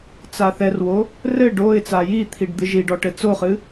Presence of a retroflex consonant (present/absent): present